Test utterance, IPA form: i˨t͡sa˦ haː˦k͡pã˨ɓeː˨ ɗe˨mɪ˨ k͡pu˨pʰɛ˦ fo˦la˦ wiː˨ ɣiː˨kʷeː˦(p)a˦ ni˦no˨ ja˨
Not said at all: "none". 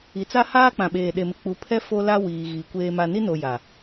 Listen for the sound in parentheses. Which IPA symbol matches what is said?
m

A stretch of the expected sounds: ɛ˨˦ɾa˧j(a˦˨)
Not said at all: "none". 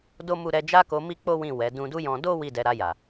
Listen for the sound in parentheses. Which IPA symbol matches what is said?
a˨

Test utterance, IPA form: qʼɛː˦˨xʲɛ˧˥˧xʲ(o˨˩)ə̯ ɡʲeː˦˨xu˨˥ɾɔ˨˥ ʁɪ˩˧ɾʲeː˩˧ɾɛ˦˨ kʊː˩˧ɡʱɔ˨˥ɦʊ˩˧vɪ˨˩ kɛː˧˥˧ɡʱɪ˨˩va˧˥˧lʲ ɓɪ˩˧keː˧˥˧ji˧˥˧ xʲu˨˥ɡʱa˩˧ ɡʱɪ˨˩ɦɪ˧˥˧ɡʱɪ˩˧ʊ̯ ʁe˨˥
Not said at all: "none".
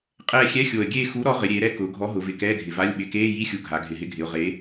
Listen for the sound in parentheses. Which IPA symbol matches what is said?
o˨˩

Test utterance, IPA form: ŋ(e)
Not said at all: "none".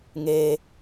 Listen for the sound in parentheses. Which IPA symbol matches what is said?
e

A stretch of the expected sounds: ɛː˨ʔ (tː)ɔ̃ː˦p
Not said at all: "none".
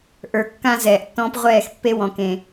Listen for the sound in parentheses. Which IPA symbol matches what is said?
tː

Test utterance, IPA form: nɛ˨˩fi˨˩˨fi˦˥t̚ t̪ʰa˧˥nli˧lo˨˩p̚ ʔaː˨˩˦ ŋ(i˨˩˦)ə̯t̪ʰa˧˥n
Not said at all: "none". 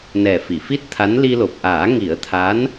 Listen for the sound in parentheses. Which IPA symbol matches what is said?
i˨˩˦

